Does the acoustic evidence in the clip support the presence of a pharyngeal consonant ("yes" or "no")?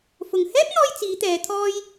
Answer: no